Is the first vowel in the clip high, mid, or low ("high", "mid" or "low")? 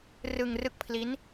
high